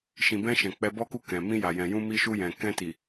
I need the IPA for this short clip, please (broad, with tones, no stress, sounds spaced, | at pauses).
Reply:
ʃ ĩ˨ b ɛ̃˧ ʃ ɛ̃˨ k͡p ɛ˧ b ɔ˦ k u˦˨ k ɛ̃˨ m ĩ˧ j a˨ j ɛ̃˨ j ũ˧ m i˧ ʃ u˧ j ɛ̃˨ k ɛ̃˧ t i˨